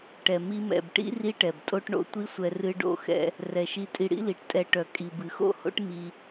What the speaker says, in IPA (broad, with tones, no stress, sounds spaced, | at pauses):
ʈ ɛ˨ m i˧ m ɛ̰˨ b ʈ ḭ˦ r i˦ ʈ ɛ˨ b tʼ o˦ ʈ ɳ o̰˧ tʷ i˦ sʷ ɛ˧ r ɨ˧ ɖ o̰˦˨ x ɛ̰˧ | r ɛ˨ ʃ i˧ tʼ i˧ ɽ ḭ˦ l i˨˦ ʈ tʼ ɛ˧ ʈ œ˨ kʼ i˨ b ɨ˨ x o̰˦˨ h o̰˦ ʈ m i˧